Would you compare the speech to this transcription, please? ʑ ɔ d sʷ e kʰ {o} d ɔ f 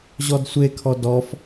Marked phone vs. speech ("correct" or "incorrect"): incorrect